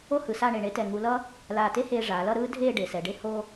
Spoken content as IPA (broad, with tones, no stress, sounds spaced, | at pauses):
o˥ h ɯ˩˧ s a˥˧ ɳ e˧˩ ɳ e˥ t ɛ˧˩ ŋ u˧ l ʌ˥ | l aː˧˩ t e˥ h eː˧ ʐ aː˩˧ l ʌ˥˧ ɾ ɯː˥ dʱ eː˥˧ ɖ e˩˧ s ɛ˩˧ ɖ e˥ h o˥